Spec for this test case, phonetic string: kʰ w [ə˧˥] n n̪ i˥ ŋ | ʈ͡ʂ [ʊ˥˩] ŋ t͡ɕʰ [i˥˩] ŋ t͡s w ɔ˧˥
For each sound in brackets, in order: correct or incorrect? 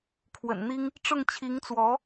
incorrect: ə̰˨˩, correct, incorrect: i˧˥

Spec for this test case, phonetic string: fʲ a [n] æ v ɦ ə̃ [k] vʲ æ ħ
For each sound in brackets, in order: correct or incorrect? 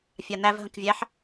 correct, correct

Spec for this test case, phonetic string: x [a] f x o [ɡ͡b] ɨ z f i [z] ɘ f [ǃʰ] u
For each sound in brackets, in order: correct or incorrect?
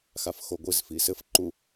correct, incorrect: ɡʷ, incorrect: s, incorrect: ǃ

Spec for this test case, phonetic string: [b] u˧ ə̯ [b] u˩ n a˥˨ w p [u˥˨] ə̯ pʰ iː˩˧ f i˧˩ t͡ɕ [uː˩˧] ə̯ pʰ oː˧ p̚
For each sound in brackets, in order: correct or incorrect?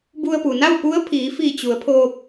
correct, incorrect: p, incorrect: u˧˥, incorrect: u˩˧

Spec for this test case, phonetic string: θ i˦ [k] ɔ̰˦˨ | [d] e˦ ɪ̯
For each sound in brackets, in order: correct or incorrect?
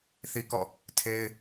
correct, incorrect: tʰ

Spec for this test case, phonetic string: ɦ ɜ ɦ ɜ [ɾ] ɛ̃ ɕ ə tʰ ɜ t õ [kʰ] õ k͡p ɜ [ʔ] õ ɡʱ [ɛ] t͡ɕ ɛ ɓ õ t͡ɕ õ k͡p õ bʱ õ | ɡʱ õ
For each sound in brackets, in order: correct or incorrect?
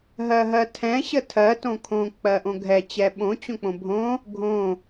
incorrect: tʰ, correct, correct, correct

